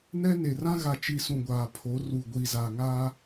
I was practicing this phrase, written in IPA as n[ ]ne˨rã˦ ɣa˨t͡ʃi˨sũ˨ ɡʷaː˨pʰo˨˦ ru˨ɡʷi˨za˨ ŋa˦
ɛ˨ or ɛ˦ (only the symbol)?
ɛ˦